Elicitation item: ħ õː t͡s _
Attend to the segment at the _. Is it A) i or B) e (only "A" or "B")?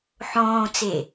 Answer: B